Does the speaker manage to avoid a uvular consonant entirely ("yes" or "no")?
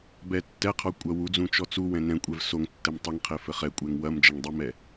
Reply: no